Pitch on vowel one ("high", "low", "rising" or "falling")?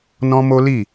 high